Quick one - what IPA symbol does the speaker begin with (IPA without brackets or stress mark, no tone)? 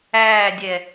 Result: æː